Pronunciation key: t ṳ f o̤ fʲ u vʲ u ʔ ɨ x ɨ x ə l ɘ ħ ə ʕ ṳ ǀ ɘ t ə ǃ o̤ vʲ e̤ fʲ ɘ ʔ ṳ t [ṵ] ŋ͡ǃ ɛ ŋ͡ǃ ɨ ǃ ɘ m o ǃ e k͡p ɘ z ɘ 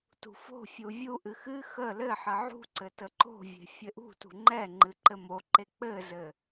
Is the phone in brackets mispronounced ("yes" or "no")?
yes